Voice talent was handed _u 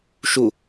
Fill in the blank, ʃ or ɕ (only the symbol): ʃ